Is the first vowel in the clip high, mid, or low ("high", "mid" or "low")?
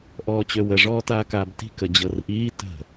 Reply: mid